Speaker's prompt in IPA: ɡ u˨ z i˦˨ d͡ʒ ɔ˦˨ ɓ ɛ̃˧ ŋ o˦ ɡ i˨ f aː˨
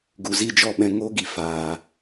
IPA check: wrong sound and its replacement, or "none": none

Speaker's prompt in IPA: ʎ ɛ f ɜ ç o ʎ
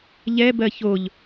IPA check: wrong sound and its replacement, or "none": f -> b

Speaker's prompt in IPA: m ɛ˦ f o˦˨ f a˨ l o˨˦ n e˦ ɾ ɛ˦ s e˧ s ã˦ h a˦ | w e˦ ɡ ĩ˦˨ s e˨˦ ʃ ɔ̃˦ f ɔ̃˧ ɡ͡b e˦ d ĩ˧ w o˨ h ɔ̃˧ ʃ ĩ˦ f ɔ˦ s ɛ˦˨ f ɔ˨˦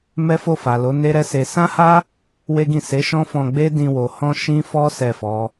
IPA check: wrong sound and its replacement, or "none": none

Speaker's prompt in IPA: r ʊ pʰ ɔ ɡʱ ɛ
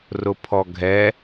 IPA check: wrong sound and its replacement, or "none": none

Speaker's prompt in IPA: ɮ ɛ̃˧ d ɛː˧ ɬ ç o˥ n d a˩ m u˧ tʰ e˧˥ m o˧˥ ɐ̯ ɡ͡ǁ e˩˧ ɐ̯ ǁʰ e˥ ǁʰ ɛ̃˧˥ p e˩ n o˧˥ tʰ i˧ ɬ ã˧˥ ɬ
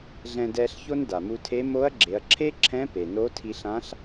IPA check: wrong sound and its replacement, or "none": none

